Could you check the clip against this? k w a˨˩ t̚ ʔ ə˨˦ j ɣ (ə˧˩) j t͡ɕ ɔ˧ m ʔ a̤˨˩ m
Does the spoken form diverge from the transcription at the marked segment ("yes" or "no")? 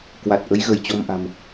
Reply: no